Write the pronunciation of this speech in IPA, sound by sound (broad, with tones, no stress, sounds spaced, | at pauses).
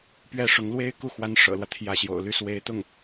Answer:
p ɥ ɛ˥˩ ʂ ʊ˧˥ ŋ l w e˥ ɪ̯ k u˥˩ x w a˧˥ n ʂ ɤ̰˨˩ l w ä˦ t̪ʰ j ä˥˩ ɕ j o̰˨˩ ʊ̯ l y˥˩ s w e˧˥ ɪ̯ t̪ ʊ˥˩ ŋ